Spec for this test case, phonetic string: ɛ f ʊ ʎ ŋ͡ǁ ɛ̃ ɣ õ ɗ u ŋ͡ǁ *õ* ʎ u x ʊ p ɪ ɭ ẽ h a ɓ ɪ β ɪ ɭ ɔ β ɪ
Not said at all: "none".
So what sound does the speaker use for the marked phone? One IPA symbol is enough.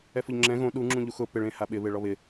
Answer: ũ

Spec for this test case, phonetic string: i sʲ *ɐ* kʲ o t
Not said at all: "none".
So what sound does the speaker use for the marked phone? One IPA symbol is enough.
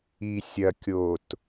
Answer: ɐ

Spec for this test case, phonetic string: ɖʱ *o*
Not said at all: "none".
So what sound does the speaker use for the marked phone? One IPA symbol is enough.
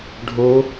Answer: o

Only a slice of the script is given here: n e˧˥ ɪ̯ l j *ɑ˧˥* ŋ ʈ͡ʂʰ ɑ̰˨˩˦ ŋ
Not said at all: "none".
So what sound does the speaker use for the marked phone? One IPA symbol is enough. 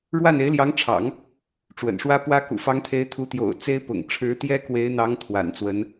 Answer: ɑ˧˥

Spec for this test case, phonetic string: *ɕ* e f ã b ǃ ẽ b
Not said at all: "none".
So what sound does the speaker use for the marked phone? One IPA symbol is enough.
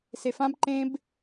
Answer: s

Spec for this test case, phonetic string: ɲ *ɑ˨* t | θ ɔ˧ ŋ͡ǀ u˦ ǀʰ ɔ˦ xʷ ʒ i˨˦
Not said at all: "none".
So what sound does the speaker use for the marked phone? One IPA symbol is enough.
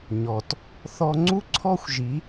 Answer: ɔ˨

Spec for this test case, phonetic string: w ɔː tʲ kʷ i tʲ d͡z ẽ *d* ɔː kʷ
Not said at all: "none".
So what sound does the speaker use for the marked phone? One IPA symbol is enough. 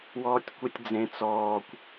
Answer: t͡s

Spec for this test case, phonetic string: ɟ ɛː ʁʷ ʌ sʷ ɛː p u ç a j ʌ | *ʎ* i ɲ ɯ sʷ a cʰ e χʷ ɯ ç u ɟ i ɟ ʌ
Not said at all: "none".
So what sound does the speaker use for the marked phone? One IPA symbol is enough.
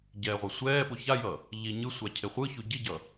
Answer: ʎ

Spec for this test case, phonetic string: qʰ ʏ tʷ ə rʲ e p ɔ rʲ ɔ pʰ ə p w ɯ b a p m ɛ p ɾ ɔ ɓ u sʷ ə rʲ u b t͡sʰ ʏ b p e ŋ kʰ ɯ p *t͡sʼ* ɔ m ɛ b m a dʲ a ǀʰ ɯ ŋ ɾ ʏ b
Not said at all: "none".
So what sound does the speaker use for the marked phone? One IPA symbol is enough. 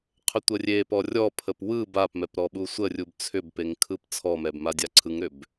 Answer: t͡sʰ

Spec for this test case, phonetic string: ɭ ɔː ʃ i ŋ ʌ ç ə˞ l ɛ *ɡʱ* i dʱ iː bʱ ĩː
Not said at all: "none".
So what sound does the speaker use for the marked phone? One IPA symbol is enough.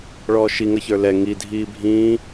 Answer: ŋ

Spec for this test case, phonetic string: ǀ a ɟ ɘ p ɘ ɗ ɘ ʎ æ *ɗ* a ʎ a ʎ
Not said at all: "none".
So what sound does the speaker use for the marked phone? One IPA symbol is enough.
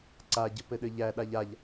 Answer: ɗ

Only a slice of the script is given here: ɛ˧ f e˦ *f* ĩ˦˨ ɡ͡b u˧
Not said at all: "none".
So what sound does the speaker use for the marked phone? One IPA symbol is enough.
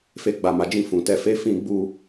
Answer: f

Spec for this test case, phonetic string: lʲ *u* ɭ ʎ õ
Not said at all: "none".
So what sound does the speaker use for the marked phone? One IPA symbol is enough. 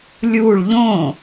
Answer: u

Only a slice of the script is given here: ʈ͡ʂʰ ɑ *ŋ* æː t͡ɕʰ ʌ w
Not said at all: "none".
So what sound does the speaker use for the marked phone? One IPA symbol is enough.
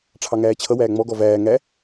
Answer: ŋ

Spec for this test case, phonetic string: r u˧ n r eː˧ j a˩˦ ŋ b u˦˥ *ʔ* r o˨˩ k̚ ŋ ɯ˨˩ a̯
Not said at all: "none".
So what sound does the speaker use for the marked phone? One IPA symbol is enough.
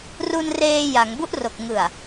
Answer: ʔ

